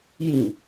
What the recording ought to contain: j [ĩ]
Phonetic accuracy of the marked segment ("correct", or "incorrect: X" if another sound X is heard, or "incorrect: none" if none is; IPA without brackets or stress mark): correct